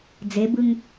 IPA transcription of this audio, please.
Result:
d͡z e b ɯ ŋ

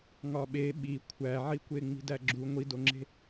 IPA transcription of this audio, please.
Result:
ŋ ɒ ɓ e ɓ i kʷʰ æ ʕ i kʷ e ŋ͡m i̤ d æ ɡ͡ǁ u ŋʷ i d o ŋ͡ǁ e̤

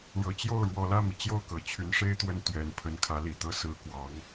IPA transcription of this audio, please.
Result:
ɻ ɤ˨˩ t͡ɕ j o˥˩ ʊ̯ ɻ w ɔ˨˩ l ä˥˩ m i˩ t͡ɕ j o˥˩ ʊ̯ k ɤ˨˩ t͡ɕʰ y˧˥ n ʂ e˥ ɪ̯ t̪ w ə˥˩ n t̪ ɥ ɛ˨˩ n pʰ ə˧˥ n kʰ ä˧˥ l i˨˩ t̪ ɤ˥ s ɹ̩˧˥ k w ɑ˧˥ ŋ

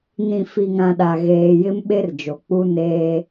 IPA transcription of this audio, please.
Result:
n ĩ˨ f i˨ ŋ ã˨ ɗ a˨ ɣ eː˨ j ɪ˦ m ɓ e˦ r d͡ʒ o˨ k͡p u˦ n eː˦

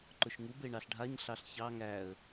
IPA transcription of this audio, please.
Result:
ǃ ʊ ʃ ŋ u b e ɳ ɑ ɬ ɖʱ a ɲ ɬ ɑ ɬ ç ɑ ŋ æ ə̯

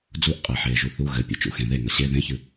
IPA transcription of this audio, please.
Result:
d͡z u ʔ qʼ e ħ eː ʒ u θ u ɣ ɘ pʲ ḛ t͡ʃ ṵ x ẽ ð e ŋ ɐ ɕ e ð ẽ ç ɨ

